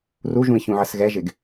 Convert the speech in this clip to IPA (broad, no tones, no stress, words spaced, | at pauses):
ruʒũi̯çũʕəs ɣɛʒɪɡ